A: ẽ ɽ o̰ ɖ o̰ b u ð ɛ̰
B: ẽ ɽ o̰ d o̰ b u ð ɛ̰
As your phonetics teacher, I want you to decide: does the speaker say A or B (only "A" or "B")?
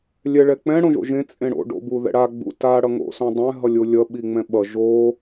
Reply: A